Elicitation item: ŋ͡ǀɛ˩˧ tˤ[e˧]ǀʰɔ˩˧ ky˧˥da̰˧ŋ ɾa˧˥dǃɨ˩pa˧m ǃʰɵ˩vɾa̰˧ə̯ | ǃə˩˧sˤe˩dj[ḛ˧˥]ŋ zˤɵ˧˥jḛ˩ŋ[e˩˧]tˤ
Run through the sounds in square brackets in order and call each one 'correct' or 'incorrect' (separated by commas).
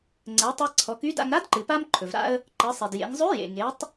correct, incorrect, correct